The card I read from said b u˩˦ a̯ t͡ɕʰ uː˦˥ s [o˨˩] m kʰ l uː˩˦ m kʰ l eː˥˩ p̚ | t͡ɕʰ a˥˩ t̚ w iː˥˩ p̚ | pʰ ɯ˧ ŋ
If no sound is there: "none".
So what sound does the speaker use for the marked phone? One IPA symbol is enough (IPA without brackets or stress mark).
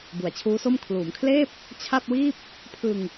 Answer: o˥˩